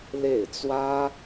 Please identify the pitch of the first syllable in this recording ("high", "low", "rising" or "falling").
falling